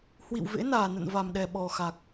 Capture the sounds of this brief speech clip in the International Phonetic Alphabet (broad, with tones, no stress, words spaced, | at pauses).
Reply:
hwḭ˧˨wvḛ˧˥naː˨˩nə̰˧˨n va˨˩mɗɛ˨˩ ɓɔ˨˩xa˨˩k̚